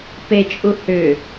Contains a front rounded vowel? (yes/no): yes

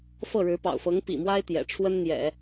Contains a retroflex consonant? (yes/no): yes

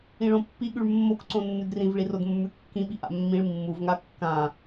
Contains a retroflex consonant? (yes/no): yes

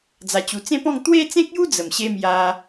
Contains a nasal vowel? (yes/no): yes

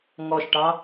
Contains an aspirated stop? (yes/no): no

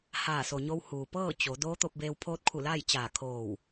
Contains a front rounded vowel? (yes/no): no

